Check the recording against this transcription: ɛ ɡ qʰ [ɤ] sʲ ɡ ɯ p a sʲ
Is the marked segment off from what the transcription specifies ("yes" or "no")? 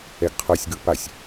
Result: no